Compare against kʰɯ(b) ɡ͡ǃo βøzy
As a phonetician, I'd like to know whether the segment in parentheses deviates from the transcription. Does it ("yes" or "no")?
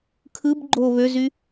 no